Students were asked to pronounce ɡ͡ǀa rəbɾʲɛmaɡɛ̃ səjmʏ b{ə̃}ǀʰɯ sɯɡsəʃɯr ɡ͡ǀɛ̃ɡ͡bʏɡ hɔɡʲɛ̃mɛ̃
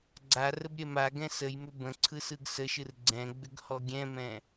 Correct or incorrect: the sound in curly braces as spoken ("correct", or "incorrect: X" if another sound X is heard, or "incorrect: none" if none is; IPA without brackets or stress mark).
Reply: correct